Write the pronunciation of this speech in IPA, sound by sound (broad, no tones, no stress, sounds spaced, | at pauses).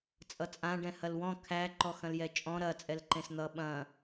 t͡sʼ ʌ t͡sʼ ã ɖ ɛ̃ h ɐ l w ɔ̃ kʰ æ ǃ ɔ x ɐ̃ l j ɛ t͡ʃʼ ɔ̃ ɾ ɐ t͡sʼ ɛ l ǃ ẽ s n̪ ʌ ɓ ɐ̃